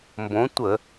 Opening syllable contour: rising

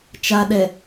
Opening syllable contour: low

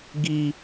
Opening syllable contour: high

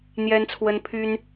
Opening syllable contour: high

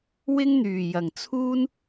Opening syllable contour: high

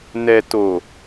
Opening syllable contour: low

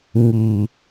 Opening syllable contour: low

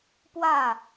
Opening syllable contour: falling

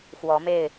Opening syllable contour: rising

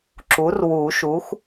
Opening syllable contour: rising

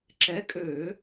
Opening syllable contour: rising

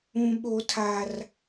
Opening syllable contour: low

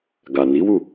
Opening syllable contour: low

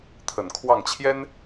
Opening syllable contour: low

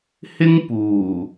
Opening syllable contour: high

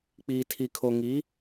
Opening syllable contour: low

